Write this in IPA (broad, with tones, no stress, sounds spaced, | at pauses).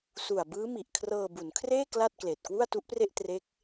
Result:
s u˨˩ a̯ b ɯː˦˥ m i˨˩ ʔ kʰ r ɤː˧ b u˩˦ n kʰ r eː˥˩ k l a˥˩ t̚ k l eː˨˩ t̚ k w u˥˩ a̯ t u˦˥ ʔ p r e˥˩ ʔ t r e˦˥ k̚